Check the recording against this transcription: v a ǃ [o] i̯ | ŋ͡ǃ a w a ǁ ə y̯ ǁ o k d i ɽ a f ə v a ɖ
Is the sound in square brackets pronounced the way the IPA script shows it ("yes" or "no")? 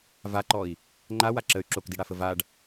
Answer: no